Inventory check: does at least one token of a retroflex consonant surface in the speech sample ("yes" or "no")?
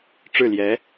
yes